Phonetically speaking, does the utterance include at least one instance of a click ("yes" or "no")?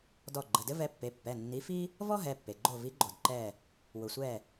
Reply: yes